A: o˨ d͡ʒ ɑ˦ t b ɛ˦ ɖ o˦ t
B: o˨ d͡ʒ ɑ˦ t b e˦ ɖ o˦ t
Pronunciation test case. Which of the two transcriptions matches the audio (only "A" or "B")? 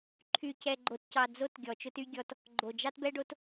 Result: A